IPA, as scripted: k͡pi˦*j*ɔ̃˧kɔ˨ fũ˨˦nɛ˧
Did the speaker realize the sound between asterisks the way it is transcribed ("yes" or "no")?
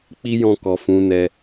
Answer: yes